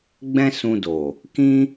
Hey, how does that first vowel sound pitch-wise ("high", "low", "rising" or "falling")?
high